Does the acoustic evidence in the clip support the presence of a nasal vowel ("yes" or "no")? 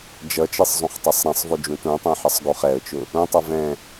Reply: yes